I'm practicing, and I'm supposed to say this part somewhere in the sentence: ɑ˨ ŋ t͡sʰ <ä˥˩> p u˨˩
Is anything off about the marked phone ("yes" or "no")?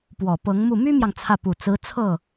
no